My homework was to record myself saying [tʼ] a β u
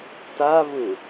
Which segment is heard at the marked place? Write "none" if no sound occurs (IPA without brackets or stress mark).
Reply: t